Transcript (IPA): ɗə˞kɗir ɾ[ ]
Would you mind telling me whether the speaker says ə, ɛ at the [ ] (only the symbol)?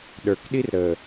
ə